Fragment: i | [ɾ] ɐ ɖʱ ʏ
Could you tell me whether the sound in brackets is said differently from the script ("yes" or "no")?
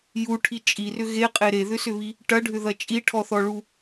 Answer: yes